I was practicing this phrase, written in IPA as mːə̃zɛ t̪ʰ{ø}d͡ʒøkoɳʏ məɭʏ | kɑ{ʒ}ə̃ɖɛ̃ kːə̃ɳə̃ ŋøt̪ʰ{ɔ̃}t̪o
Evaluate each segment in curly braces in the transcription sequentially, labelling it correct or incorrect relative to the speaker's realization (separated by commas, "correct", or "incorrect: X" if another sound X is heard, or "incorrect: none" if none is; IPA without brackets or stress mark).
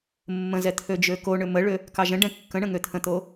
correct, correct, incorrect: ə̃